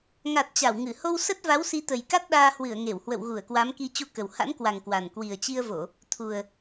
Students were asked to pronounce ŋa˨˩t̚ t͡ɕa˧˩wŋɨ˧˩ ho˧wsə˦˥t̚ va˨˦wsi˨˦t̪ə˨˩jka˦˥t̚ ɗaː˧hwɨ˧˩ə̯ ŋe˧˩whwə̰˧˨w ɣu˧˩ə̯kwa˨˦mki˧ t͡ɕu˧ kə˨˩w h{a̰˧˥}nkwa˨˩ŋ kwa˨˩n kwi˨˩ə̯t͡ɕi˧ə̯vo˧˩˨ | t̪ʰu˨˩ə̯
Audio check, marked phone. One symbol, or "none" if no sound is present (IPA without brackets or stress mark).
a̰˧˥